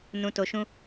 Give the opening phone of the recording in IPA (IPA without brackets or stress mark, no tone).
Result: n